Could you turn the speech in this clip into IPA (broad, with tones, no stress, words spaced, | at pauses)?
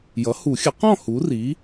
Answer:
jʌ˩˥hu˨˩˦xʲə˩˥qɔ̃˥˨ hu˩˥ri˩˥